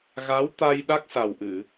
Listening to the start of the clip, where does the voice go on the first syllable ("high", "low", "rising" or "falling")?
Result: rising